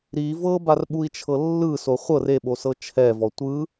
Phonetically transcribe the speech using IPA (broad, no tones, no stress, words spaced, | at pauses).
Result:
ɾi vɤbarɓui̯t͡ʃʰɤ lːɯso χʷɤr eɓosɤ t͡ʃʰɛvɔ tʷɯ